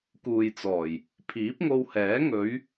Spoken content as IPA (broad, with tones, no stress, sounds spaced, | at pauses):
k uː˨ j t͡s ɔː˨˩ j | pʰ iː˨˥ p̚ ŋ o˧ w h ɛː˨˥ ŋ ɵ˨˥ ɥ